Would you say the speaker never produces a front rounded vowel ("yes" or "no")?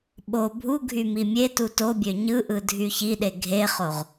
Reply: no